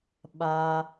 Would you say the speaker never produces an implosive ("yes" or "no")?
no